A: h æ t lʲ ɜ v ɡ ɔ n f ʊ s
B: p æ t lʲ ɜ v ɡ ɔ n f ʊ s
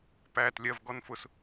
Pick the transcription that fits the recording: B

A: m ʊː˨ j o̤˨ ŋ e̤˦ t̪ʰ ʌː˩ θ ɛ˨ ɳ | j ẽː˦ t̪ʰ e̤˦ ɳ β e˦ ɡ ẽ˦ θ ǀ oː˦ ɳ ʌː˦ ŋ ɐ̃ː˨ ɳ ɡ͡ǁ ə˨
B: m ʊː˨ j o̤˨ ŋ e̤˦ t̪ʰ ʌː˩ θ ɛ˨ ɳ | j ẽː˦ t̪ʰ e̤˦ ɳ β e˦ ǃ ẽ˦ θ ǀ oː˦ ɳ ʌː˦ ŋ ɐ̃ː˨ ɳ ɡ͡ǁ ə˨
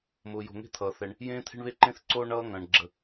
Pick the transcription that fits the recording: B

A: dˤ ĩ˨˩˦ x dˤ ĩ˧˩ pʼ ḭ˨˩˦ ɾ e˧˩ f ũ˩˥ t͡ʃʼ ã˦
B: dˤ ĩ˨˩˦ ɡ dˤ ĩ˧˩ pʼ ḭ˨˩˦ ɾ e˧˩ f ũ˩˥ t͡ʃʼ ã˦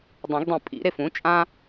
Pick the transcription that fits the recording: B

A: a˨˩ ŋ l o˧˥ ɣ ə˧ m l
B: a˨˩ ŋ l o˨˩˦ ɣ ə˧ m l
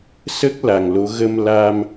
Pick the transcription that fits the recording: A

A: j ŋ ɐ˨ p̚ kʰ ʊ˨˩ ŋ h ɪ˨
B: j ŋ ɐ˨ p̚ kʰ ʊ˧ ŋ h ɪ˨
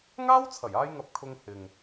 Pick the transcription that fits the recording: B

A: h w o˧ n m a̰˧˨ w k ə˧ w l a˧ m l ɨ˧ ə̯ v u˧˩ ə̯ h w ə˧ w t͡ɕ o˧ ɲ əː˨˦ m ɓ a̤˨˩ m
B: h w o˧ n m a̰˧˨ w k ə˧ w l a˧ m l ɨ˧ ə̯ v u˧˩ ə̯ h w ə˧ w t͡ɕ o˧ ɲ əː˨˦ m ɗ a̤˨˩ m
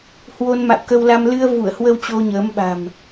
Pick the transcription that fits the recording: A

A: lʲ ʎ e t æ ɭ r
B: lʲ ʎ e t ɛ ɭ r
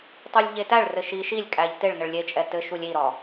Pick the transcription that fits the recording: A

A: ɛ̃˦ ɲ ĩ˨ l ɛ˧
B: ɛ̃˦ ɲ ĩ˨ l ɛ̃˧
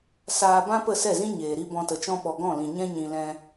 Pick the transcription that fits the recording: B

